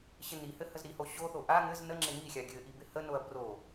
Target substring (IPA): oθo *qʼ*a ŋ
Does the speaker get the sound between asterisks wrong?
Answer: yes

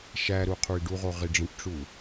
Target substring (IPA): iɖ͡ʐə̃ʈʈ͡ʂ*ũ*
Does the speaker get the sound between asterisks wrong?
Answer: yes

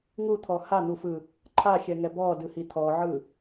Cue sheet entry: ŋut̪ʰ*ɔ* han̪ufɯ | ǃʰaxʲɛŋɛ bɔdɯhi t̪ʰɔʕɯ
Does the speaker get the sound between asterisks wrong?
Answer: no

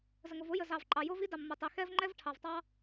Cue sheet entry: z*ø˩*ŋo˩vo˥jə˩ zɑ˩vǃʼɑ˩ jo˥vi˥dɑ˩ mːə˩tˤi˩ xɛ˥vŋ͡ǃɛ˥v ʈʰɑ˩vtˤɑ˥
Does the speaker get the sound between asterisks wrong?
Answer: yes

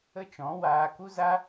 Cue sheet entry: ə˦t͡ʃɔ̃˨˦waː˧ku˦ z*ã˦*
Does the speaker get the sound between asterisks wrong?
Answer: yes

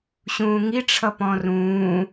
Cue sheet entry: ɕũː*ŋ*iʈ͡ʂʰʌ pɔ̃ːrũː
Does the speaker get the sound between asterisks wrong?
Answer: no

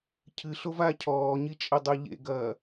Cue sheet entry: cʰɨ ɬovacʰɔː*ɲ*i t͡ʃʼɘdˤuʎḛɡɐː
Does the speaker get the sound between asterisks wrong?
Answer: no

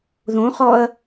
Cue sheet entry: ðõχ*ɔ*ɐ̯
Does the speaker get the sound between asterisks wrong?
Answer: no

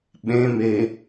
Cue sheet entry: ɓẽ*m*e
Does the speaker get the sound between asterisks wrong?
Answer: no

